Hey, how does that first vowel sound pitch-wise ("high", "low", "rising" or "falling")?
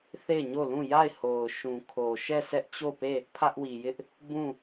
falling